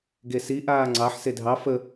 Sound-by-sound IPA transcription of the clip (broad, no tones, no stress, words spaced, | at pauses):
ɡesi ʔaːŋ͡ǀɑħ sedʱɑ fə